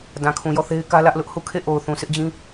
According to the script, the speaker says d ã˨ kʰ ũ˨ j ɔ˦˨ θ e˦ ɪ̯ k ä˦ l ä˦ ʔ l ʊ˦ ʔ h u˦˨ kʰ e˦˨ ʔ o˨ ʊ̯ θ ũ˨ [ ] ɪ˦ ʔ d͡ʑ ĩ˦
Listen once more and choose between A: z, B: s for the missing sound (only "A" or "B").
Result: B